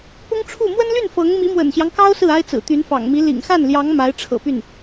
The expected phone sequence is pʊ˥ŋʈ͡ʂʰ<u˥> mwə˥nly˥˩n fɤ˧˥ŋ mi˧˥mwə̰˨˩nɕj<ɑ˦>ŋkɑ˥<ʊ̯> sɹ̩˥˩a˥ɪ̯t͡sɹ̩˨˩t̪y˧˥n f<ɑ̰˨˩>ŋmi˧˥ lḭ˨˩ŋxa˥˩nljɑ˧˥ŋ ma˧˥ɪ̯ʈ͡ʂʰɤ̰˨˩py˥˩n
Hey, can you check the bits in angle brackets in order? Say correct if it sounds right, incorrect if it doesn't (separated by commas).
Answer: incorrect, correct, correct, correct